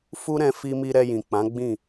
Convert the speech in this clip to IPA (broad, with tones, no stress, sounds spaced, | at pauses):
f u˦ ɾ ɛ̃˧ f i˧ m i˧ ɾ ɛ˧ j ĩ˨ k͡p ã˨˦ ɡ͡b ĩ˦˨